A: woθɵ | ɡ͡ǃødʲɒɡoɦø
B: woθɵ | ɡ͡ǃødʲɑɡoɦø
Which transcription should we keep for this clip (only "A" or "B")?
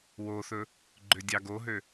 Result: B